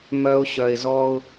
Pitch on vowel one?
high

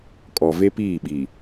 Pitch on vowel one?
low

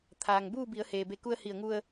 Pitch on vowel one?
low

